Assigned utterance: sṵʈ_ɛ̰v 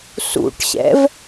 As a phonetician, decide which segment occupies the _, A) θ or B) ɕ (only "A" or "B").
B